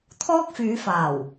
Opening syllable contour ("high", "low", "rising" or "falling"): high